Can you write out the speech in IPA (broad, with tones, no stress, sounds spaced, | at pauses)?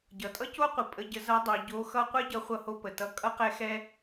ɟ ʌ˩˧ tʼ ʌ˥ c o˥ qʷ ə˩˧ pʼ ə˧˥ ɟ ə˧˥ z ʌ˧˥ dˤ o˩˧ ɟ o˧˥ x ʌ˥ qʷ ɛ˥ ɟ ʌ˧ χʷ ʌ˧ h o˧ p ə˩ t ʌ˧˥ kʼ ʌ˥ q ɛ˥ x ɛ˥